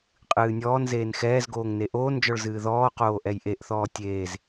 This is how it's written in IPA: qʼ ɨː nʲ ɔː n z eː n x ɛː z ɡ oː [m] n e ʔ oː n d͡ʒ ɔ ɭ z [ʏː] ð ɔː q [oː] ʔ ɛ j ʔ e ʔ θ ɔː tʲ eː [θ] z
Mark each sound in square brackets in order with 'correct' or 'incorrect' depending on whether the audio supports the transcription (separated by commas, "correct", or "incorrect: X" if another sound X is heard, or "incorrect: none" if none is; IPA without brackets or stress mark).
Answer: incorrect: ŋ, incorrect: ɨː, correct, incorrect: none